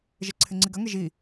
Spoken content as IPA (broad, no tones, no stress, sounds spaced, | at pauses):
ʒ e ǀʰ ɪ ŋ͡ǀ i ɡ ɐ ŋ e ʒ i